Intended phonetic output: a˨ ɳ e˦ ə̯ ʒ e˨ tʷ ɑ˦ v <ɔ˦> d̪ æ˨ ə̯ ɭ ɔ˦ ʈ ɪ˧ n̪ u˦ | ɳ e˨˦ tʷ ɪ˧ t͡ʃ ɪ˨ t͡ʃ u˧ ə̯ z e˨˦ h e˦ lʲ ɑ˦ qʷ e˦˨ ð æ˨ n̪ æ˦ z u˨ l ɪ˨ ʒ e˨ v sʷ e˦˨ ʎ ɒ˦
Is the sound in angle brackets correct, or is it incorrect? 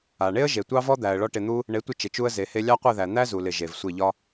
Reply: correct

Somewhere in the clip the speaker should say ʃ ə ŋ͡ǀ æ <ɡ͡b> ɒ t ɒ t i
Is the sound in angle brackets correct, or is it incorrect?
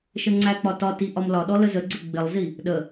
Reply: incorrect: k͡p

